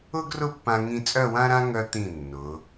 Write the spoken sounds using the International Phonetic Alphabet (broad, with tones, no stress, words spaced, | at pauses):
ʊ˥ɡrʊ˥˧pːã˧ŋĩ˧ t͡sʼœ˥˧wã˥ɾã˥ ŋœ˧t̪ĩ˧˩ nːʊ˩˧